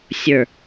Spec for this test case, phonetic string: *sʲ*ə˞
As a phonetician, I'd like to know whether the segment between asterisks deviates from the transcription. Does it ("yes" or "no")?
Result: no